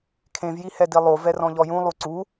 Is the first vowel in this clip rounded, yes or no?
no